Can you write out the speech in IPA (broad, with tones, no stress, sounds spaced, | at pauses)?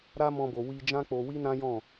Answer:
ɾ a˦ m ɔ̃˧ b o˨ w i˧ d͡ʒ ã˦ k͡p o˧ w i˦ n ã˦ j ɔ̃˦˨